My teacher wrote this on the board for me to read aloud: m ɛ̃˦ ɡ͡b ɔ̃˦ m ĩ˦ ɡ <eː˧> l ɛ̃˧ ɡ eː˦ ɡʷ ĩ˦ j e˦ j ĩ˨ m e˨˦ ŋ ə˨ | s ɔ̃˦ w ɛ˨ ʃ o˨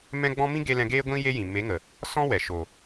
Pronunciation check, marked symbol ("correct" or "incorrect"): incorrect